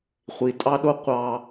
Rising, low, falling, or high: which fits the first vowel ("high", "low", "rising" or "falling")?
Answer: low